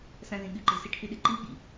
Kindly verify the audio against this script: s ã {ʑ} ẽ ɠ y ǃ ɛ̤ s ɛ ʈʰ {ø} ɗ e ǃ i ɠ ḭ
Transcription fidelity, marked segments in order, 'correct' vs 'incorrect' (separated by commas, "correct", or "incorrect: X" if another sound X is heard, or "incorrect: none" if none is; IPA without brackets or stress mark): incorrect: z, incorrect: y